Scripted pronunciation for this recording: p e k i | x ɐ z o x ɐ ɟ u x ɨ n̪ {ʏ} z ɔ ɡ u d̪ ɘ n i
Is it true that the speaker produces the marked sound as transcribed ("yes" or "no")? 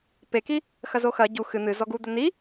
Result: no